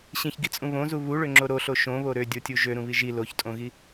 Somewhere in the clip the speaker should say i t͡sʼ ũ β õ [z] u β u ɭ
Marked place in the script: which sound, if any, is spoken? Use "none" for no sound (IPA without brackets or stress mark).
z